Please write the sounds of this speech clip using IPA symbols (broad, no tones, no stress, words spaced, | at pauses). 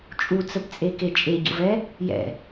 t͡ʃʼut͡səpt͡sʼeke t͡ʃʼeɟə̰vɛ | jɛ̰